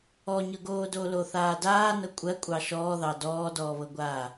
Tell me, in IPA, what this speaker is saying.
ɔ ɲ ɤ ɡ oː d o l o θ aː d aː n ɤ kʷʼ ɜ kʷʼ ɑ ʃ ɔː ð ɑ d ɔː d ɔː β ɤ ɡʷ aː

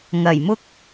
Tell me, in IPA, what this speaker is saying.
ŋ ɐ˨˩ j m ʊ˥ k̚

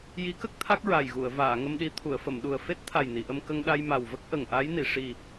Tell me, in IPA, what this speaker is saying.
j i˧˥ k ə˦˥ k̚ t̪ʰ a˦˥ k̚ ɹ a˨˩ j ɣ u˨˩˨ ə̯ v aː˨˩˨ ŋ ə˧ m ɗ i˧˥ t̪ʰ u˨˩˨ ə̯ f ə˨˩˨ m ɗ u˨˩ ə̯ f e˦˥ t̚ t̪ʰ a˨˩ j n i˨˩˨ ʔ ə˧ m k ə˧ ŋ ɗ a˧ j m a˨˩ w v ə˦˥ k̚ ʔ ə˨˩ ŋ ʔ a˧˥ j n i˨˩˨ ʂ i˨˩

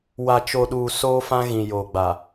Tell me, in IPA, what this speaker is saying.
w a˨ t͡ʃ o˨ ɗ uː˨ s oː˦ f ã˦ ɣ ĩ˨ j oː˨ ɡ͡b a˨

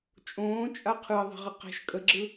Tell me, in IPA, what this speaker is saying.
t͡ʃʼ õː t͡ʃʼ a qʰ ɯ ə̯ ðˤ i̤ ʁ ə q ɛ̤ ʃ kʼ ə ɡ͡ǁ ɯ

